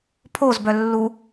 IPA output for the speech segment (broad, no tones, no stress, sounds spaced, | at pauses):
pʰ o z b œ lː u